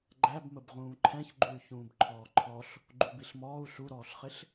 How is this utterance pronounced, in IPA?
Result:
ɡ͡ǃæb məbʁũːǃʰɛ̃çɡ͡ǃuy̯ çũːbǃʰɔːǃʰɔɬ | ɡ͡ǃubiɬmɔːu̯ ɬuɾɔːɬχɪɬ

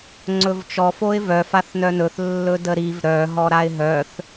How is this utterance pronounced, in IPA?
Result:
ŋ͡ǀɵvt͡ʃɔ foɪ̯vœ faθnœnɵθ lːɵdəɾiv ɾœ ɦɔɾaɪ̯ɦœθ

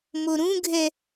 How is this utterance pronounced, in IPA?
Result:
moɾũɡʱɛ

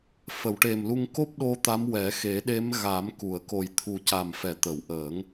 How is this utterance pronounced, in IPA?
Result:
fə˨˩˨wʈe˨˩mlu˧ŋ ko˦˥p̚ɗo˧ t̪a˧˥mwɛ˨˩˦ xe˨˩˦ɗe˧˥mɣa˨˩˦mku˨˩˨ə̯ ko˨˩jt̪ʰu˨˩ca˨˩m fɛ˨˩˦t̪ə˨˩˨wʔəː˨˩˦ŋ

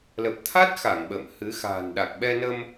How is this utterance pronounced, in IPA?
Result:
lə˨˩p̚t̪ʰa˦˥t̚xa˧˩ŋ ɓə̰ː˧˨mhɨ˨˦ xa̤ː˨˩nɗa˨˩k̚ɓɛ˧nə˧m

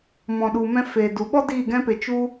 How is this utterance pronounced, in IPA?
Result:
mɔ̃˨ɗu˨mɛ̃˧ feː˨du˨ɓɔ˦ diː˦˨ɡɛ̃˦pe˧ t͡ʃu˧

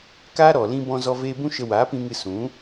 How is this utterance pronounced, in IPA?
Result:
kaː˦ ɾɔ˨lĩ˧bɔ̃˧ zɔ˧ veː˧bũ˦ʃə˧ waː˨˦pĩ˧ŋɨ˧ sũ˨˦

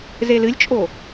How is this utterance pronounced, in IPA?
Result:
zelɨlʲt͡ʃʼo

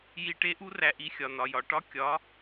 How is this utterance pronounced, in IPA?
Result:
ji˧ʈe˥ʔu˥ ræ˧ʔi˧xʲɒ˩ nɒ˩jɒ˩ʈɒ˥ kʲɒ˩˥

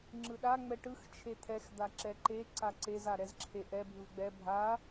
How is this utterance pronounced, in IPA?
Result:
ŋ͡ǁɯɗa ŋ͡mɛʈɯx t͡ʃʰet̪ʰɛx d̪aǁɛǃe ǀaǀez aɾɛzǁʰeʔɛ bʱɯvɡ͡bɛ bʱa

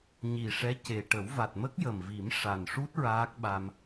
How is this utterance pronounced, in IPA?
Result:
ɲi˨˩ʂɛ˧˥ ce˨˩ ʈə˨˩˦wva˨˩t̚ mə˦˥k̚jə˨˩mvi˨˩˦m ʂa˨˩nʂu˦˥t̚ ɹaː˦˥k̚ɓa˧m

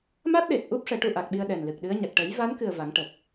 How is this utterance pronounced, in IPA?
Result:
ma˦˥t̚ɗe˨˩t̚ʔu˦˥p̚ ʂɛ˨˩˦ʈu˧ʔa˨˩k̚ɓi˧ə̯ ɗɛ˨˩nlɨ˨˩k̚ɗɨ˧˥ə̯ɲa˨˩k̚ ʈə˨˩˦jva˧˥nkɨ˨˩ə̯ va˨˩˦ŋʈə˨˩k̚

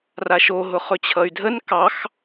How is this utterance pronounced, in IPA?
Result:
raʃoɦʊ χɵt͡ɕʰʌy̯dʱən kɑx

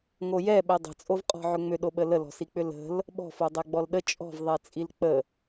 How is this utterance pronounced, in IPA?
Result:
ŋojɛɓɛ dˤə̤t͡sʼovqʼɔ̤ʕʏ ŋ͡mʏɗoɓə ləlɔ̤sik͡pʏ lə̤l | ɓɔ̤fo dˤɛɡ͡bɔlɗə t͡ʃʼɔ̤vðˤɛt͡sʼil k͡pə

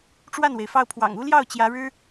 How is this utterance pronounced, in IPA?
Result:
ʈ͡ʂwa˥˩nwe˩ɪ̯ fɑ˥˩ʊ̯pʰwɑ̰˨˩ŋ u˥ljɑ˥˩ʊ̯ t͡ɕjä˧˥ɻɻ̩˥

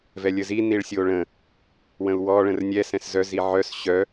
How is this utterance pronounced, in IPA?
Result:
vɛlʲəzi niɭsʲoɭə̃ | wə̃u̯wɔ ɭə̃rnʲɛ sɛ̃szœ ziʕœs ɕœ

